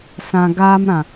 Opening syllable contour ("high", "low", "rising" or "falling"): low